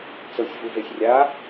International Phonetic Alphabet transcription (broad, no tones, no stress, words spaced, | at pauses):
t͡sɤsʲvuvesʲ rʲa